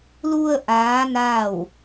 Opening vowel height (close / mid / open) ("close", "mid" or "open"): close